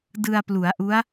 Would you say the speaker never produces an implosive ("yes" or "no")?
yes